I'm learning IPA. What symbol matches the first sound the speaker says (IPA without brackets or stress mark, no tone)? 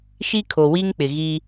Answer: ʃ